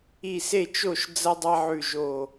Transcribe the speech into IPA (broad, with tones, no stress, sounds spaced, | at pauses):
i˧˩ s e˥˩ t͡ʃ o˥˩ ʃ d͡z ɐ˦ dˤ a˦ ʕ ʉ˧˩ ʒ o˧˩